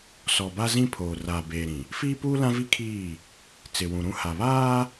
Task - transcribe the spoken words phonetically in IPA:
s ɔ˨ b a˦ z ĩ˦ pʰ oː˨ r aː˨ b eː˨ ɾ ĩ˨ | f iː˦ p uː˦ l ã˦ v i˦ kʰ iː˦˨ | t͡s ɪ˨ w ũ˨ ɾ ũ˦ h a˨ β aː˦

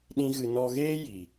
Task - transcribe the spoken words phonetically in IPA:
ɗ ĩ˦ ɣ ɨ˧ n ɔ˧ ɣ eː˦ j i˨

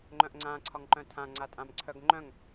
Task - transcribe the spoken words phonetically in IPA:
ŋ͡ǃ œ̃ ʔ ŋ͡ǀ ã ǀʰ ɒ ŋ ǃ œ̃ tʰ ã ŋ͡ǀ a tʼ ã m ǀʰ œ ɡ ŋ͡ǃ œ̃ ŋ

